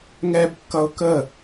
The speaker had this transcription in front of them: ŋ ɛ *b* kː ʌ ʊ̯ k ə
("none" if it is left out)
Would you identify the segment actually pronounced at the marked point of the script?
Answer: b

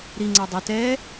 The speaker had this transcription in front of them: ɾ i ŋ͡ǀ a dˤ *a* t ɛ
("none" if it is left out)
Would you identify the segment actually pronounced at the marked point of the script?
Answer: a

